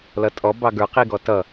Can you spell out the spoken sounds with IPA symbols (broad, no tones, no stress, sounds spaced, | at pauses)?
l ʌ tʼ ɔ b ɑ ɡ ə˞ q i ɡ ɔ t ʌ